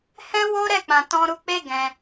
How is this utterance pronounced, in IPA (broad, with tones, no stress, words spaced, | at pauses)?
hɛ̃˦wo˦ɾɛ˦˨ k͡pã˨tɔ̃˧ɾu˧k͡pe˦ ɡɛ̃˧